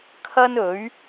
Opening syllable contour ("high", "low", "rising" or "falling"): high